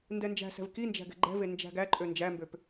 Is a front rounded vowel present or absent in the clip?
present